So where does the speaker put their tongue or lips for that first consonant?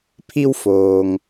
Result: lips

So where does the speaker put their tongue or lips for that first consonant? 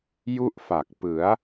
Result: palate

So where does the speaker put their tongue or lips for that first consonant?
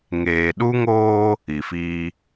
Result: velum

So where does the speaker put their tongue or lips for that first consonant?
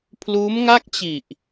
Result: lips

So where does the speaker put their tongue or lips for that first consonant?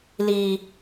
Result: tongue tip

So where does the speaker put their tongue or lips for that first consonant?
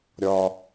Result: tongue tip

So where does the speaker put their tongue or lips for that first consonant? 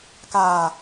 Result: velum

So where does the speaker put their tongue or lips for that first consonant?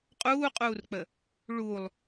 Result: uvula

